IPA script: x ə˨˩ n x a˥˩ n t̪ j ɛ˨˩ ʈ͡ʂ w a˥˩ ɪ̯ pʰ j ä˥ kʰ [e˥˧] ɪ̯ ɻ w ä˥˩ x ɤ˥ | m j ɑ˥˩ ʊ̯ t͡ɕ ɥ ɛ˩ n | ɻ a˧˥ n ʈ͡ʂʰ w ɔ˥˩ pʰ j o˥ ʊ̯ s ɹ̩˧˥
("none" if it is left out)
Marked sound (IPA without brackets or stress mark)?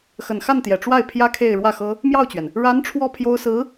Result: e˥˧